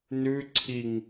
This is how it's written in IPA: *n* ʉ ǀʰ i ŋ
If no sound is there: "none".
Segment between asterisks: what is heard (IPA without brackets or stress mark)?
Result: n